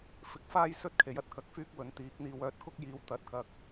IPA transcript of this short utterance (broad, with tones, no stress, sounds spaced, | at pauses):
f ɪ˨ k̚ f aː˥ j s ɵ˥ t̚ kʰ e˨˥ j ɐ˥ t̚ k ɐ˧ k̚ f yː˥ k̚ w ɵ˨˥ n t̪ iː˨˥ k̚ n̪ iː˧ w œː˧ t̚ k ʊ˥ k̚ j iː˨ w t̪ ɐ˨˥ t̚ k ɐ˧ k̚